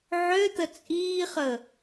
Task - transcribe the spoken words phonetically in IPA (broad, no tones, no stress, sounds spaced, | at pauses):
ʕ ø t̪ ə t͡sʼ iː χ əː